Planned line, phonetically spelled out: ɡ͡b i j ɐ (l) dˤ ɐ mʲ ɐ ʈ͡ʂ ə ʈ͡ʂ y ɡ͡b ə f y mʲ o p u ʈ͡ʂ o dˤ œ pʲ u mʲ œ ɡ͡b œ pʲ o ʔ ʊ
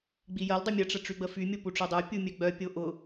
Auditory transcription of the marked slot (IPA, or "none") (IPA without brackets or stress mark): l